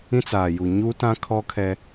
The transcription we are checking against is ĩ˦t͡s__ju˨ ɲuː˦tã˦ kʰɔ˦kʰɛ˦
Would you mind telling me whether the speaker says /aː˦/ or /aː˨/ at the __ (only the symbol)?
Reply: aː˨